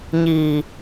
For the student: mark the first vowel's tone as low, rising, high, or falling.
low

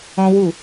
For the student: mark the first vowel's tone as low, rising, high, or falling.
high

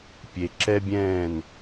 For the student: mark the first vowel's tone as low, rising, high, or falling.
low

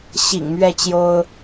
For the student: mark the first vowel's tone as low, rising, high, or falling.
low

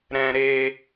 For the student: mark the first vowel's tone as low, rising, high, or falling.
high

